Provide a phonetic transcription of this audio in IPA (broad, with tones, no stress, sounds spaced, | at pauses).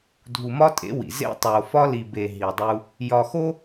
dʱ u˨ m ɒ˦ tʼ ḛ˨˦ w ḭ˨ z ḛ˦ tˤ o˨ f ɒ˦ l i˨ b e˨ ɦ i˨ dˤ u˦ | j ɒ˨ x o˦